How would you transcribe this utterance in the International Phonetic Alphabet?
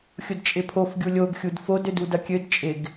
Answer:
xʲʊdt͡ʃʼɪpʰof ɡʲulʲoɡ xʲudfod ødudɐkʲød t͡ʃʼɪɡ

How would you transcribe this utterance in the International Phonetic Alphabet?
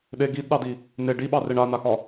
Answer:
ɗe ɡidɗɑdi | ne ɖiɓɑreɳ anaxɒ

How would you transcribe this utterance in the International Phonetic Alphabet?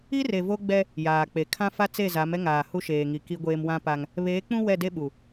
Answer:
i˦re˨vo˦ɡ͡bɛ˦ | jaː˨k͡pe˨ kʰã˦ fa˦t͡se˦˨ za˨˦mɛ˦ ŋaː˨hu˦ʃeː˨ŋi˨ ki˦ɡʷeː˦m wã˦pa˦ŋ | βeː˨˦k͡pũ˦ wɛ˦˨de˦ɓu˨

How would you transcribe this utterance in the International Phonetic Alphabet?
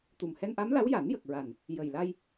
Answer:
t̪u˨˩mhɛ˧nʔa˧˥mla˧˥w ja˨˩˦njə˨˩k̚ɹa˨˩n | jə˨˩jla˧j

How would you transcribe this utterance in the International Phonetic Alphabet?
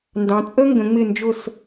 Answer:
ndɑ̃˩˧t͡sʼə˥ ŋɡə̃˩˧ ŋ͡mɪ˧˩nd͡ʒʊ˧˩s

